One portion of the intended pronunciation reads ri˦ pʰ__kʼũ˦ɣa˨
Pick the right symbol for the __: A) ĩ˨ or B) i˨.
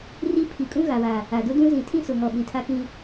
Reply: B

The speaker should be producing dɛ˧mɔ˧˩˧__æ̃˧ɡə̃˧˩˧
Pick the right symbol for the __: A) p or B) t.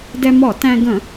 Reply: B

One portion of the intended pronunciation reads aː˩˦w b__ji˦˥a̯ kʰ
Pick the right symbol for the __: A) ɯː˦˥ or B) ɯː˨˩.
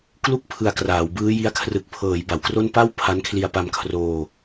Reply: A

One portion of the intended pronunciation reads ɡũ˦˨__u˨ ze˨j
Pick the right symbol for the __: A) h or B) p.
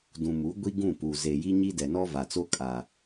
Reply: B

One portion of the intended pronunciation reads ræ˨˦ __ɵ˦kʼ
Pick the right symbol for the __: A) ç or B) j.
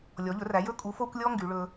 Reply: B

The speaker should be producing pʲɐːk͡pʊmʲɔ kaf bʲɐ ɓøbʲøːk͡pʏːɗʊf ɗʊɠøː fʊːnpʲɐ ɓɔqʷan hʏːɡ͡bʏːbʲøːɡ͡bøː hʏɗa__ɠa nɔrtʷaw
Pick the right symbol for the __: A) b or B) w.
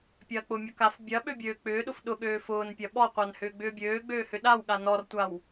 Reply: B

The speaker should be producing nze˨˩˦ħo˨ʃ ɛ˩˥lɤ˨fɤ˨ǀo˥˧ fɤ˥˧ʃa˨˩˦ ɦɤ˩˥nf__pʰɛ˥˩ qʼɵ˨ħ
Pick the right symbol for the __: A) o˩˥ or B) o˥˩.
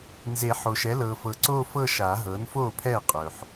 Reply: B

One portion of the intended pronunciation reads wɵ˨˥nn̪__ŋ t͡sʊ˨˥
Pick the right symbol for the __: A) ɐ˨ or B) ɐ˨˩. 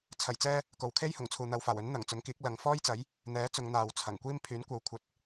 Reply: B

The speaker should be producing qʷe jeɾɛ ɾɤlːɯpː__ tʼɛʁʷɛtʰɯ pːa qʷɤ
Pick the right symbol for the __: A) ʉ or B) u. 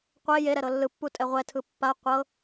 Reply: B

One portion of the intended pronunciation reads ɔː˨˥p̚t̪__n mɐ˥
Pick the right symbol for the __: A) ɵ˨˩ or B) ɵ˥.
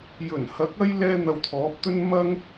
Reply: B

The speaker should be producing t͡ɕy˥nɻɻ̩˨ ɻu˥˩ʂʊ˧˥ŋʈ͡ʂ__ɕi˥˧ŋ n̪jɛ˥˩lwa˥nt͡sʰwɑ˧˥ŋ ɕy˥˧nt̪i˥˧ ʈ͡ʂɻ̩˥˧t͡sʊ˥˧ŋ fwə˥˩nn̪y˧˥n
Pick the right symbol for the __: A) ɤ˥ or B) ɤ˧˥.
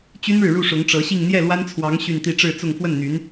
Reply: B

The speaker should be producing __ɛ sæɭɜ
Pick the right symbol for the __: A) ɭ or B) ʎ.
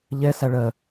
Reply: B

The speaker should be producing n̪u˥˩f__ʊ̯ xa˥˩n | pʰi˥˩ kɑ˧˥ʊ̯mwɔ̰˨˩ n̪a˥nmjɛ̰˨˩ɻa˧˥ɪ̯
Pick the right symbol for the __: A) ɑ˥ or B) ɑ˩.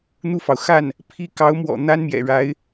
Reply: B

